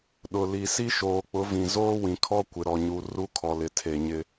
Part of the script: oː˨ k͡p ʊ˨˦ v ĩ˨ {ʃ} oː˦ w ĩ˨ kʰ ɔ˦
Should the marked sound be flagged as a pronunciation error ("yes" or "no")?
yes